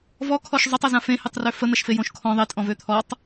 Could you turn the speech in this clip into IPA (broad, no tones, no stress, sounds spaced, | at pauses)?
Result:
v ɔ kʰ ɔ ʃ zˤ ø tˤ ɐ z ã f ẽ h e tˤ r ø f ə n̪ ɐ ʃ f e j õ ʃ kʰ ɔ̃ ðˤ e tʼ ɔ̃ v ø t̪ʰ ɔ tˤ